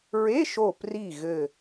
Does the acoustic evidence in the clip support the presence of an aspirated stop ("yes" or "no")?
no